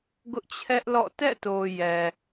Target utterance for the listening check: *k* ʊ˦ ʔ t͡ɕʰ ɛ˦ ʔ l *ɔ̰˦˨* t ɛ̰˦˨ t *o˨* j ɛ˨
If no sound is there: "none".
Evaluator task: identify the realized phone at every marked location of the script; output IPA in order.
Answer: ɡ, ɔ̰˦˨, o˨

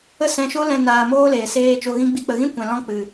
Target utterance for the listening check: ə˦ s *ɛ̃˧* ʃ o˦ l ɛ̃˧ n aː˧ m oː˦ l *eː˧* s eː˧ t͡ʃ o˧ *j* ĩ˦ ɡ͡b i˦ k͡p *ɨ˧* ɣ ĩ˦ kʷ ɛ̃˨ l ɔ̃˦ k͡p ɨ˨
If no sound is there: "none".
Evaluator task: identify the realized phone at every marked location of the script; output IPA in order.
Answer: ɛ̃˧, eː˨, ɣ, ə˧

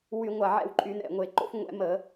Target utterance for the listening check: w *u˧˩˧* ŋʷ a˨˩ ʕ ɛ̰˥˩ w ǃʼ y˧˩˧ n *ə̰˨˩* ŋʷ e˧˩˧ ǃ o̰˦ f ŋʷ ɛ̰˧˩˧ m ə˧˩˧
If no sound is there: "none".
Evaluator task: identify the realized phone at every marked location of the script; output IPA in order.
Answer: y˧˩˧, ɛ̰˨˩

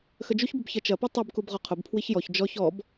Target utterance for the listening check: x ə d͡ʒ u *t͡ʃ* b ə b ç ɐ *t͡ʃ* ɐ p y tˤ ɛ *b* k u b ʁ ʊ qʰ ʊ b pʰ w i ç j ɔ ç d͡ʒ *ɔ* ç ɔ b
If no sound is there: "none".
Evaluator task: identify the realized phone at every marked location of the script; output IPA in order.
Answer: ç, t͡ʃ, b, ɔ

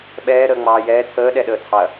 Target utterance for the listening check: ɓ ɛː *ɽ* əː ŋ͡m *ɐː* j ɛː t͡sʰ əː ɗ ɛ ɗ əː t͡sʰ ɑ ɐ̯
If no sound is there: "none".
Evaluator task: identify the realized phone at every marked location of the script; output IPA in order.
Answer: ɾ, ɑː

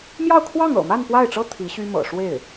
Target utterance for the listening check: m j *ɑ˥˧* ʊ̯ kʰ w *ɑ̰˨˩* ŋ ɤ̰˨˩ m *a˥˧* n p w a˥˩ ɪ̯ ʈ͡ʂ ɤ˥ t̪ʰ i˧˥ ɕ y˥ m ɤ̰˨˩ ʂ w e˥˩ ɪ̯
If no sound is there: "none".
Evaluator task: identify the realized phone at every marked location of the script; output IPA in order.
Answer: ɑ˥˧, ɑ˥˩, a˥˧

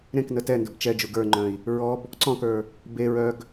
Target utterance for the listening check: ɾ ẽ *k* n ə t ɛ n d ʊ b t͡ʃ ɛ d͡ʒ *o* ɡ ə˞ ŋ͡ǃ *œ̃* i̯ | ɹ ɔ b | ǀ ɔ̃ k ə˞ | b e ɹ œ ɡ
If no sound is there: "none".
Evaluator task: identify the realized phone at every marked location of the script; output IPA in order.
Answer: k, u, œ̃

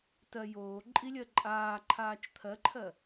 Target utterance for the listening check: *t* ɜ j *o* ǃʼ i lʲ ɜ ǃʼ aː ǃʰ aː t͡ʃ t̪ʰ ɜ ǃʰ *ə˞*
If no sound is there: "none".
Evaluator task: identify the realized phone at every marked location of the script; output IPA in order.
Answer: t, oː, ɜ

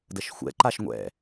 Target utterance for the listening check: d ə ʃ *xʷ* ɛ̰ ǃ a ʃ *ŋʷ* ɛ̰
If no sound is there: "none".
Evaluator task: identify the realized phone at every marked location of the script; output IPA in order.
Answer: xʷ, ŋʷ

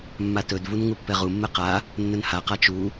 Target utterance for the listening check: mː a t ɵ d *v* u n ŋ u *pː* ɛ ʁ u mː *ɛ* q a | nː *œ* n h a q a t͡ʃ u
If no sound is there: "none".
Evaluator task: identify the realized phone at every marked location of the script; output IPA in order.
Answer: v, pː, ɛ, ɵ

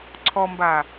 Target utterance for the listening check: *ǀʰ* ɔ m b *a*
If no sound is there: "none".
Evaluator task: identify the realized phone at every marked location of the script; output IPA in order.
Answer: ǀʰ, a

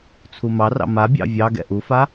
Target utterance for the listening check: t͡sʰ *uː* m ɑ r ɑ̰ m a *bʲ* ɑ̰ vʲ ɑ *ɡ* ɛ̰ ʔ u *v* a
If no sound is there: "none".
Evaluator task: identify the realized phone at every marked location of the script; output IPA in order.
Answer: u, bʲ, ɡ, f

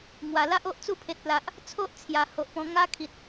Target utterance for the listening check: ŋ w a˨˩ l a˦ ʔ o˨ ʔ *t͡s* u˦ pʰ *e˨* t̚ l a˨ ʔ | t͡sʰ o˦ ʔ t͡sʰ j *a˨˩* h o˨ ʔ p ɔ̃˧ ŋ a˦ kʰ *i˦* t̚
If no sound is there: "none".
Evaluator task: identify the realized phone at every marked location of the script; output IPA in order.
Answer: t͡s, e˨, a˨˩, i˨

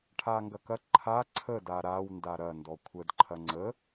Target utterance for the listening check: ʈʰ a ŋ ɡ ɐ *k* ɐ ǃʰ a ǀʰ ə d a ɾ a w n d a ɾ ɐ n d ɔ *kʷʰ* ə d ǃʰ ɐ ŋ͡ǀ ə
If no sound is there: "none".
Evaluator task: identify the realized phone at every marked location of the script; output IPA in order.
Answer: k, kʷʰ

